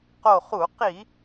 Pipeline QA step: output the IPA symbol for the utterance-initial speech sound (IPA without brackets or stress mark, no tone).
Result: q